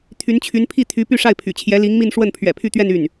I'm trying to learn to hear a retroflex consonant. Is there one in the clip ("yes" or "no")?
yes